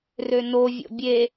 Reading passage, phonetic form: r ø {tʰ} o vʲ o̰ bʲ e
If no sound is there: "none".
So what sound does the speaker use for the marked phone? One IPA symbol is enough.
n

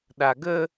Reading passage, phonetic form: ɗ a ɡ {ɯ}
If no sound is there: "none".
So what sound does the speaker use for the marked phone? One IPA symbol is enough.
ə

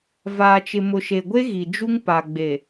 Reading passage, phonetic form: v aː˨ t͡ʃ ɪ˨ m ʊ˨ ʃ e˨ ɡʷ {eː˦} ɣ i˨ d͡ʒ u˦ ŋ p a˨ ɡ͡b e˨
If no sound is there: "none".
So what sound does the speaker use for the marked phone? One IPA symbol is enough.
e˦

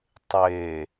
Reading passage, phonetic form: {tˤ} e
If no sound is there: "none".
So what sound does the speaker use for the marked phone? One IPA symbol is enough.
tˤ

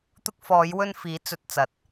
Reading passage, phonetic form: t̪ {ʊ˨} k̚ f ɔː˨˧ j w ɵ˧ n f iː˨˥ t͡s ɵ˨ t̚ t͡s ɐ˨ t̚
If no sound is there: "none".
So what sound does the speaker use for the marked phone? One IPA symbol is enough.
ʊ˧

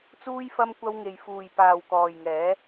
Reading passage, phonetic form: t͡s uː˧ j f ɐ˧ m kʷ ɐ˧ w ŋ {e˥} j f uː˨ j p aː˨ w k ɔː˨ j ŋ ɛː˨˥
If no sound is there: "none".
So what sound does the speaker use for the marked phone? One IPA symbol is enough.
e˨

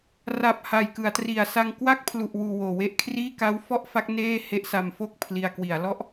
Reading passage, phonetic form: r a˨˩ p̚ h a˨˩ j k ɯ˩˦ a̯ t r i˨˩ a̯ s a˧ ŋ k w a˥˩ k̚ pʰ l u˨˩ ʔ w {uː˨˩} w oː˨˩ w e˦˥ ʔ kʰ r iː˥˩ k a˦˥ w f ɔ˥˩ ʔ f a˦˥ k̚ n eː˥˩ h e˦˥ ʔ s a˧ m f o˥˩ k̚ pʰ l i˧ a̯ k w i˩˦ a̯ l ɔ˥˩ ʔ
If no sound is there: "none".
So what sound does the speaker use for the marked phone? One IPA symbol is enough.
uː˨˩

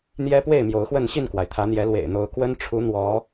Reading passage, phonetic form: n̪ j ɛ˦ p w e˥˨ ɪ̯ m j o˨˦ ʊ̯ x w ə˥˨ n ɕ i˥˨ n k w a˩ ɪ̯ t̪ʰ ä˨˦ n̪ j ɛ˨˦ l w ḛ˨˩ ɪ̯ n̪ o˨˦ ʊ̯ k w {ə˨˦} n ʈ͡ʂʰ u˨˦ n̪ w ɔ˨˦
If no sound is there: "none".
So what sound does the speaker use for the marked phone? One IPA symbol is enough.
ə˦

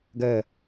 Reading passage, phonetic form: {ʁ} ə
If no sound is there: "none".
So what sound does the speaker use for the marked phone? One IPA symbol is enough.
ɡ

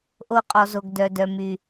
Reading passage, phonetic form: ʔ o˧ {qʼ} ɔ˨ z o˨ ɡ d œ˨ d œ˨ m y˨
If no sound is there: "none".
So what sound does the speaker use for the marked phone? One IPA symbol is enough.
qʼ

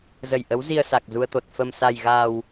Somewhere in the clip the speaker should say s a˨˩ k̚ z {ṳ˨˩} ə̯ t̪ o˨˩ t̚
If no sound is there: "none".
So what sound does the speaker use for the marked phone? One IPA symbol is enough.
u˧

